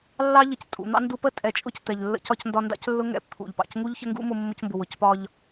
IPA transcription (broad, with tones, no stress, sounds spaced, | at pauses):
lː ɑ˥ ʎ ə˩ c tʼ ṵ˩ n̪ ɑ̰˥ n d u˧ p ə˥ tʼ ɛ˩ t͡ʃʼ ʊ˧ c t̪ ɛ˩ ʎ lː ə̰˧ c ɒ˧ c n d ɒ˧ n d ɑ̰˥ c lː ʊ˥ ŋ ɛ̰˧ p t̪ʰ ṵ˩ ʎ p ɑ̰˩ c ŋ u˥ ʎ ç ə˥ ŋ ɡ ṵ˥ m ʊ˧ mː ʊ˧ c m b ʊ˩ w ʊ˩ c p ɒ˧ ʎ